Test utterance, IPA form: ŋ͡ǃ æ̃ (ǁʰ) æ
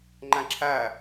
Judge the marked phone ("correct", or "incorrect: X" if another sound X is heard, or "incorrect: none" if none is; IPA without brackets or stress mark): correct